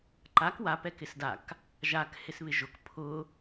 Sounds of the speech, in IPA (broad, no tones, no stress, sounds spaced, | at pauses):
ǃ a k w a p ɛ k ɪ s d a k | ʒ a k h ɪ s β ɪ ʒ ʊ k pʰ ʊ